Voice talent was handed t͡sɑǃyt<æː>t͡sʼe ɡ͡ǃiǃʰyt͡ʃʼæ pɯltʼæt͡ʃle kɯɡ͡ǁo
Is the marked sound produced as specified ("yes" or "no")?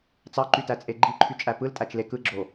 no